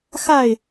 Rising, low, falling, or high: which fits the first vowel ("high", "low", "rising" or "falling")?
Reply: falling